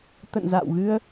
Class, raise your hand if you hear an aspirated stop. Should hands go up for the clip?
no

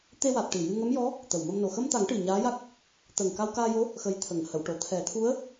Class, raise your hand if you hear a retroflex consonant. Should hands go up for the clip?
yes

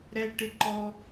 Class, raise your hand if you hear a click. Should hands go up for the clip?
yes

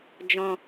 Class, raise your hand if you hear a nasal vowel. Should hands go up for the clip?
yes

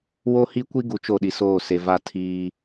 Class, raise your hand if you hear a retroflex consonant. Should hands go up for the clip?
no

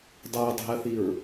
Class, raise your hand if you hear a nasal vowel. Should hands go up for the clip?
no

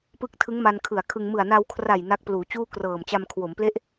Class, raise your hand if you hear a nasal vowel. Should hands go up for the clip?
no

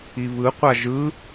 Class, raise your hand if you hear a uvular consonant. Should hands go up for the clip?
yes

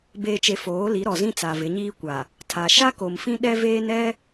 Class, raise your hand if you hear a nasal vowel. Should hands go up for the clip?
yes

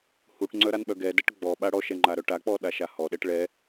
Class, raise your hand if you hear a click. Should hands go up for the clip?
yes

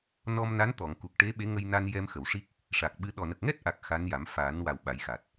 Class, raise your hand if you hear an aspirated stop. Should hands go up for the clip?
no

